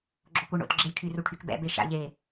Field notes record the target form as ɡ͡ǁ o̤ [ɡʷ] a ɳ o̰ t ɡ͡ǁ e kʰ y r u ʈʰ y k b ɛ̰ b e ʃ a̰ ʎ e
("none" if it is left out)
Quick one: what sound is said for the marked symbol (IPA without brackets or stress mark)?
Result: kʷ